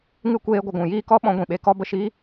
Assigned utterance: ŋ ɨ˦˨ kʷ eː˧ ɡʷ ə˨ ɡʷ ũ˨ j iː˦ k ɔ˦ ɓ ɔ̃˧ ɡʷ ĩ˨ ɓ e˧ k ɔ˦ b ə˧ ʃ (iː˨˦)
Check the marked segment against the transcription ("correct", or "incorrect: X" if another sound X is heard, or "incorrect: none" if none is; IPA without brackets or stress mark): incorrect: iː˦